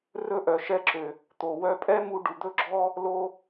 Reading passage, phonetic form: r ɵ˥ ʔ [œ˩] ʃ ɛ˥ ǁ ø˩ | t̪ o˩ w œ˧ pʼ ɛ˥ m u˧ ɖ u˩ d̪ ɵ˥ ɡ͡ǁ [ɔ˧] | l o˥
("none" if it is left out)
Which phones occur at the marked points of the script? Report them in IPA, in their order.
œ˩, ɔ˥

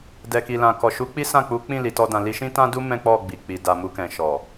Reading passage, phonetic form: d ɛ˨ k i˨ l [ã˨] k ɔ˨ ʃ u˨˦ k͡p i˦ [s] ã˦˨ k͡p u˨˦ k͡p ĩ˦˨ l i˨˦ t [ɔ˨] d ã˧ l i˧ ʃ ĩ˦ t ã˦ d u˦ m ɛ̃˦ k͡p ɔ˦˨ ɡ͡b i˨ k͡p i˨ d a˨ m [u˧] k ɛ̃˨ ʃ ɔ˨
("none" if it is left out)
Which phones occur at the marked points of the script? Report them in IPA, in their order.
ã˨, s, ɔ˦, u˧

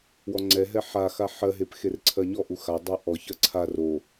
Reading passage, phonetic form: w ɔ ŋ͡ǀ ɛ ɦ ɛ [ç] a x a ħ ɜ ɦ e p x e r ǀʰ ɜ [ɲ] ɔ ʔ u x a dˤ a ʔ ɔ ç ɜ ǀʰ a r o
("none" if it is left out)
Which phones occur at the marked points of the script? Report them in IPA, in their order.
ħ, ɲ

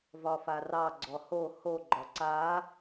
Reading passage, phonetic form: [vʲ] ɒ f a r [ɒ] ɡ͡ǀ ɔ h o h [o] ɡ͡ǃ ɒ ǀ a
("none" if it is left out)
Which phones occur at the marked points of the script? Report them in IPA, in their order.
v, ɑ, o

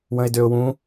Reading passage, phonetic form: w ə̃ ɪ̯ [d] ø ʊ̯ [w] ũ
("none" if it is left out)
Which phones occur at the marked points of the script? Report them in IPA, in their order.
d, w

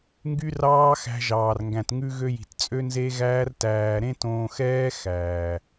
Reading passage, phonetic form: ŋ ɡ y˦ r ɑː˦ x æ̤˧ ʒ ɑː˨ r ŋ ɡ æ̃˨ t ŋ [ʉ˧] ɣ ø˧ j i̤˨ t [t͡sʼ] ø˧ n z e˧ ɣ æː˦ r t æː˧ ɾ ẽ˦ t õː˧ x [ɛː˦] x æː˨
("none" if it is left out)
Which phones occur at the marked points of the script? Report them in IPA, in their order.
ʉ˧, t͡sʼ, ɛː˦

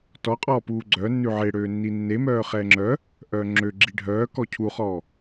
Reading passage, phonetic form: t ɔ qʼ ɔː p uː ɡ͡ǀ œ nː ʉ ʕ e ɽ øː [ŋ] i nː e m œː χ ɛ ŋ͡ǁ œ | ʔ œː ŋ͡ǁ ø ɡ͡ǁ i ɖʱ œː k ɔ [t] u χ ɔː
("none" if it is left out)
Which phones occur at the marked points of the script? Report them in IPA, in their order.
nː, cʰ

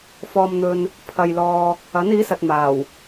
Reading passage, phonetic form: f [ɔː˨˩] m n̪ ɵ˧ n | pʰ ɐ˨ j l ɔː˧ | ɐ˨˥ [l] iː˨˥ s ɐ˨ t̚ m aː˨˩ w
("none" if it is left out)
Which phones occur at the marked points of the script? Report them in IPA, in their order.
ɔː˧, n

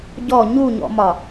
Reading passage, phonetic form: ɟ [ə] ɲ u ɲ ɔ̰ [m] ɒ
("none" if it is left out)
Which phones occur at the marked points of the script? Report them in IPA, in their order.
ɔ, m

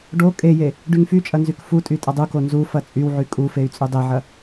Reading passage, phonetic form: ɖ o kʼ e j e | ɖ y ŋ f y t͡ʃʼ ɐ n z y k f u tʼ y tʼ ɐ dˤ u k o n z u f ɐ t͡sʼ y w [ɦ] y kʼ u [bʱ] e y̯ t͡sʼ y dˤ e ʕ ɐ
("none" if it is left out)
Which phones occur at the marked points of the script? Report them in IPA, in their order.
ʕ, f

